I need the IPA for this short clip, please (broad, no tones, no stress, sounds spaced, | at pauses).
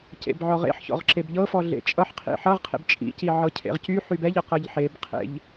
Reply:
c ḛ b ʕ ɔ ʁ ḛ ħ ç ɔ̰ ʁ ǁ e b ʎ ɤ f ɔ ɮ ḛ t͡ʃʼ ʌ ħ qʰ ḭ ħ ʌ ʁ qʰ ḛ b t͡ʃʼ ḭ c i ʕ ɤ cʰ ḛ ʁ c y ħ y b ɛ ʎ ɤ q ɤ ʎ ħ e b qʰ ḛ ʎ